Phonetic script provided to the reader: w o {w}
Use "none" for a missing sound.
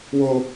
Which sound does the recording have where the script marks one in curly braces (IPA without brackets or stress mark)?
none